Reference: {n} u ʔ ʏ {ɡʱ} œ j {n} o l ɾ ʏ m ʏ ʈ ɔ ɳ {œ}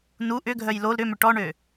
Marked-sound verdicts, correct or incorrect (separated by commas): correct, correct, incorrect, incorrect